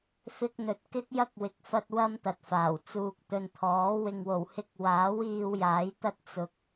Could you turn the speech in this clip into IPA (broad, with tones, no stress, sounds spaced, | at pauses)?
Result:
f ɪ˧ k̚ n̪ ɵ˨ t̚ k ɪ˥ k̚ j ɐ˥ k̚ w ɪ˨˥ k̚ f ɐ˧ t̚ w ɐ˥ m t̪ ɐ˨ t̚ f aː˨˩ w t͡s uː˨ k̚ t̪ ɵ˨ n t̪ʰ ɔː˨˥ w ɪ˨ ŋ w o˨˩ w h ɪ˧ k̚ w aː˨˥ w iː˧ w j aː˨˥ j t̪ ɐ˥ t̚ t͡s ʊ˨ k̚